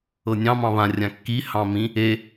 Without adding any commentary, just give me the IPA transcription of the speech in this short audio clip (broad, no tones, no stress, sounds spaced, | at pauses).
ɤ nʲ ɑ̃ m ɑ̃ β ã rʲ ã kː i h ɑ̃ m ĩ | e